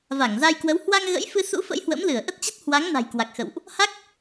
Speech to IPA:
v a˧˩ ŋ z a˧ j k w ə˨˦ w h w a˧ ŋ ɣ ə̰˧˥ j f ɨ˧ s ṵ˧˥ f ə̰˧˥ j h w ə̰˧˥ m l ɨ˧˩ ə̯ ʔ ə˦˥ t̚ t͡ɕ ə˦˥ t̚ h w a˨˦ ŋ n a̤˨˩ j k w a˨˩ k̚ x ə̰˧˨ w ʔ | h a˦˥ k̚

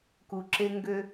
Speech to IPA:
k u˨ ǁ e˦ ŋ ɡ ø˦

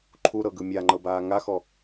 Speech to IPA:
ǃʰ u ɾ ɤ ɡ ɯ mʲ a ŋ͡ǃ ɤ b aː ŋ a x ɔ

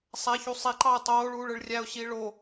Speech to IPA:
sˤ æ ç u sˤ i ǃ ɑ ə̯ tˤ oː ɭ uː ɭ ɯ ɭ rʲ æ ʊ̯ ɕ iː ɭ o

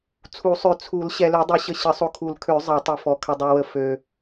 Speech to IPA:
t͡sʰ u˨˩˦ sˤ ø˨ t͡sʰ u˨˩˦ l ɕ ɛ˨ l ø˨˩˦ dˤ i˨˩˦ ɕ ə˨ ɕ ə˨˩˦ sˤ o˨ kʰ u˨˩˦ l kʰ ø˨˩˦ zˤ ɛ˨˩˦ tˤ i˨ f ɔ˨ kʰ ə˨ dˤ u˨ w ə˨ f ø˨

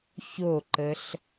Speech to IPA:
ç o ǃ ə ɬ

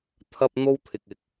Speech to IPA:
t̪ʰ ɐ˧ p̚ n̪ o˥ w t̪ʰ ɪ˨ k̚ ɪ˨˥ k̚

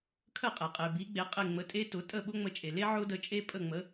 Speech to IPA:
kʰ ə˥˩ qʼ e˩ qʼ e˩ b i˩˥ ɡ͡b e˩˥ qʼ e˥˩ ŋ͡m ə˧ tʼ e˥ t ʊ˩˥ tʼ ə˥˩ ɓ ʊ˥ ŋ͡m ə˧ t͡ʃʼ e˩ l e˥ ʕ ʊ˥ d ə˧ t͡ʃʼ e˥ pʼ ə˥˩ ŋ͡m ə˩˥

